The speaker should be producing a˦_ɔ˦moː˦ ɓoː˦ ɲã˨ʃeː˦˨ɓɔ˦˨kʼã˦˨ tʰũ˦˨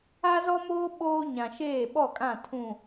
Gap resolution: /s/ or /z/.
z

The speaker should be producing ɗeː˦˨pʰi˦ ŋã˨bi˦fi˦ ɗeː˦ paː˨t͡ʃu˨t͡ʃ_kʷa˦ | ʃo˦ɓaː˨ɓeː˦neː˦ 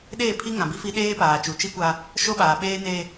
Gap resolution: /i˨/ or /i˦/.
i˦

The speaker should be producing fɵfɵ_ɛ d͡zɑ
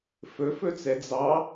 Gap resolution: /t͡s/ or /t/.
t͡s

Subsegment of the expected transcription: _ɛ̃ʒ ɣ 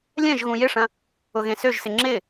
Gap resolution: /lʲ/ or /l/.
lʲ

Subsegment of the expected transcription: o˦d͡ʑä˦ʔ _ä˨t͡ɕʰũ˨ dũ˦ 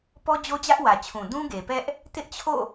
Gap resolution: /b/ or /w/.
w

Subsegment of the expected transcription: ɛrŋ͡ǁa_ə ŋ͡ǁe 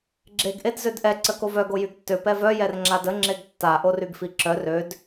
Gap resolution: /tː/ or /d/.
d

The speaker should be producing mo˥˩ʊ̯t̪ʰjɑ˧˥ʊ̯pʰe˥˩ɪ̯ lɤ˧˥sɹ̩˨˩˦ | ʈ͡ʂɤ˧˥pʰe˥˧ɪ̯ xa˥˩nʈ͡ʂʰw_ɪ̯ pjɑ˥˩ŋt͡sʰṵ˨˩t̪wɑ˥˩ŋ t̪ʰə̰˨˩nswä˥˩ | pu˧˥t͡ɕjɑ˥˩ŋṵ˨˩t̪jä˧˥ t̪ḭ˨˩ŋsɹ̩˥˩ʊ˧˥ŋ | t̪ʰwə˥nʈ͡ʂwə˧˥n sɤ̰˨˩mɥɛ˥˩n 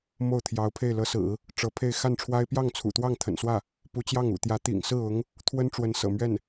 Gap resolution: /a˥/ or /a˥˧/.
a˥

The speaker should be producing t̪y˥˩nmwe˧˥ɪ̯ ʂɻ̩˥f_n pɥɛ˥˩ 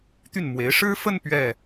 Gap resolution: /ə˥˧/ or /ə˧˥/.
ə˥˧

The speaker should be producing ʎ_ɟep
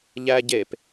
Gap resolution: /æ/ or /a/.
æ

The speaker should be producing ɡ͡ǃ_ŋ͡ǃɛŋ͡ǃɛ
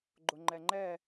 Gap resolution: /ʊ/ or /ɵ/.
ʊ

